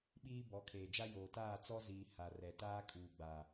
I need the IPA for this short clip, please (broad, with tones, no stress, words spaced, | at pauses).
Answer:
ɓiː˦ bɔ˨˦kʰeː˨d͡ʒa˦ joː˨taː˦˨t͡sɔ˦ziː˨ ha˨rɛ˨ taː˦kʼuː˨ɡ͡ba˨